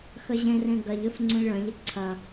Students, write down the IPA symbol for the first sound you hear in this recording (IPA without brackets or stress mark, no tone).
x